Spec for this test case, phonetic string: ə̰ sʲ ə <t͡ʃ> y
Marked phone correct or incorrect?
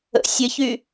incorrect